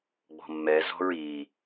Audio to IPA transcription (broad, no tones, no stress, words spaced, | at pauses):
ɡ͡bɔ̤mːɛzɔ̤ɹ i